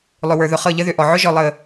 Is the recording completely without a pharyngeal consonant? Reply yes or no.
no